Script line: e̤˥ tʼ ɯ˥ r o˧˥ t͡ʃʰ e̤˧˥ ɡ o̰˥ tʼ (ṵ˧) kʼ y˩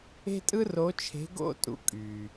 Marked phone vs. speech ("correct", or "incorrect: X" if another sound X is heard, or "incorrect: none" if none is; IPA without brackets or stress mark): correct